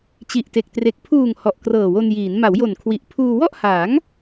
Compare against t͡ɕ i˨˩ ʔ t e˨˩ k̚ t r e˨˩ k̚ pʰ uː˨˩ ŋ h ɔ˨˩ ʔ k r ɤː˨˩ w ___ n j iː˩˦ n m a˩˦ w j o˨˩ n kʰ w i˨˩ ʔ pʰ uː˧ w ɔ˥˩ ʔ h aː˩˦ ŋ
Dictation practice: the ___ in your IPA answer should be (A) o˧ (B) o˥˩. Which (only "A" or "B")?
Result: A